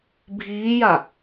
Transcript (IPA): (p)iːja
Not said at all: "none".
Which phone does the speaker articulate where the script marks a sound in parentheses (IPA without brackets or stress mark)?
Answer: bʱ